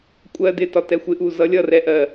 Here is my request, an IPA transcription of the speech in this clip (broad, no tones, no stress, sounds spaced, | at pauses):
kʷʼ ɜ d ɪ t ɒ t ɛ xʷ ɪ ʔ u z ʌ lʲ ʌ r ɛ ʔ ɜ